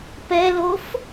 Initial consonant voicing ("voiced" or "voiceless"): voiceless